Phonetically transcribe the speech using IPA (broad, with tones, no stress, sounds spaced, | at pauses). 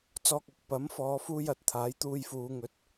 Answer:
t͡s ɔː˧ k̚ ɐ˨˥ k̚ p ɐ˨˥ m f ɔː˨˧ f uː˧ j ɐ˨˥ t̚ t̪ʰ aː˨˥ j t̪ uː˧ j f uː˨˧ ŋ ɵ˨˥ t̚